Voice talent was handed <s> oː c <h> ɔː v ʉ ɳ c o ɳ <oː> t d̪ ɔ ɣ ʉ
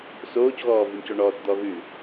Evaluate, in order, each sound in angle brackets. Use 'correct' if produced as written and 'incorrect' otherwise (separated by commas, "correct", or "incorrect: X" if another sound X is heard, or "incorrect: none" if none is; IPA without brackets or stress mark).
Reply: correct, incorrect: ɣ, incorrect: ɔː